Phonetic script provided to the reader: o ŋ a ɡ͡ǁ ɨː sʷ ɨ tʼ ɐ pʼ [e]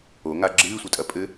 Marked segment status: incorrect: ɘ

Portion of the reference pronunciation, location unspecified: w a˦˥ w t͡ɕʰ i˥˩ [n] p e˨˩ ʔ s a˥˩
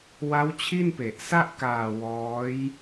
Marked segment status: correct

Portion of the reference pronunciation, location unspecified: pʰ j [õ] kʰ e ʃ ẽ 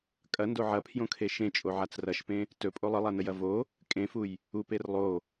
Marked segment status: correct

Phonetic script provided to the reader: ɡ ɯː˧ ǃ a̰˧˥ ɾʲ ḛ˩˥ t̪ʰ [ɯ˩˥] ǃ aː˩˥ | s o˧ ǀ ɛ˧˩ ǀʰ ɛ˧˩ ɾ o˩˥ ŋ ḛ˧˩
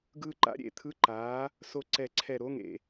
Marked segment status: incorrect: ɯ˧˥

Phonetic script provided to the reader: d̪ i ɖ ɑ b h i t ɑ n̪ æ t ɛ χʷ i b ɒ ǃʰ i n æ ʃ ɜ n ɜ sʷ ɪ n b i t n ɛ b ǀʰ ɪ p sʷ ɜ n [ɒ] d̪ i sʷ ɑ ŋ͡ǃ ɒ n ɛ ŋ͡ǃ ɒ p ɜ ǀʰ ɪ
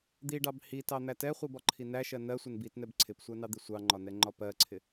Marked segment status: incorrect: ɑ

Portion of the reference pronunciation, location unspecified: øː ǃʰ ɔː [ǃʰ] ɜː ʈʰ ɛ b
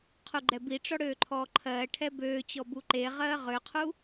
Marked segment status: correct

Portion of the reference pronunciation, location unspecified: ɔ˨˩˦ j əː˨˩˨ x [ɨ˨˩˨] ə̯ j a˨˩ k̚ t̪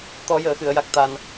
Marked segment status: correct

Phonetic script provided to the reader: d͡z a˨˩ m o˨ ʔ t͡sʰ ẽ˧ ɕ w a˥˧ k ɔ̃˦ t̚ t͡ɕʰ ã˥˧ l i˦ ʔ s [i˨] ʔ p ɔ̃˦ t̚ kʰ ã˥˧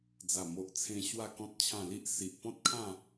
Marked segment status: correct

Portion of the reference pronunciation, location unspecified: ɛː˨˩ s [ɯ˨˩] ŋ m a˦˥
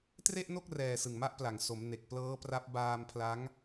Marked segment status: correct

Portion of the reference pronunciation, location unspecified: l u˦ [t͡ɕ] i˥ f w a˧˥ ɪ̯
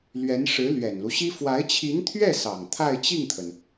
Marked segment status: incorrect: ɕ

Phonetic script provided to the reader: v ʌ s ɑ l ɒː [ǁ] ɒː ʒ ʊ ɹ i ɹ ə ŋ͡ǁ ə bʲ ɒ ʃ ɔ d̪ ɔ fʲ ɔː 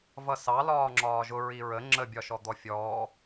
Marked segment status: incorrect: ŋ͡ǁ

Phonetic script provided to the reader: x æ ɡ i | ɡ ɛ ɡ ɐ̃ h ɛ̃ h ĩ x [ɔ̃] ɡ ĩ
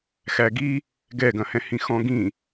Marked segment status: correct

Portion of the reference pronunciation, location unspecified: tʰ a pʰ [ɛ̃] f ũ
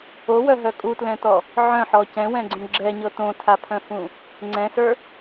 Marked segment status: incorrect: œ̃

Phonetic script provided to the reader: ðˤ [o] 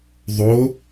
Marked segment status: correct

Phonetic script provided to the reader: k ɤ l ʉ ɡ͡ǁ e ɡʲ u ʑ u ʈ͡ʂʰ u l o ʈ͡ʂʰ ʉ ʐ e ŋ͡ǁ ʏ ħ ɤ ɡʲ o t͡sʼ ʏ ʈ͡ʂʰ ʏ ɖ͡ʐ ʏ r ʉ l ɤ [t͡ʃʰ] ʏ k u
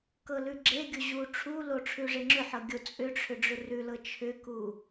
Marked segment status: correct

